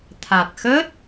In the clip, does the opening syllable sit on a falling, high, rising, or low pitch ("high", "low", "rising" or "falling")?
low